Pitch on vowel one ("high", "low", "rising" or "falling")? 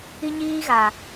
high